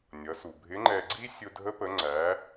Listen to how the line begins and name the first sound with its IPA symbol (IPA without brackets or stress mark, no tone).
nʲ